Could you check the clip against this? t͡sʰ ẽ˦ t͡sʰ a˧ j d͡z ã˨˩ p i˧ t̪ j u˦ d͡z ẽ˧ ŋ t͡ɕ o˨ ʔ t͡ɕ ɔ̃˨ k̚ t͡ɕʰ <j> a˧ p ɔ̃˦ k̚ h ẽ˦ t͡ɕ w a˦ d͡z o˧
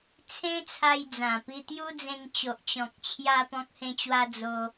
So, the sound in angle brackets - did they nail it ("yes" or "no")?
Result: yes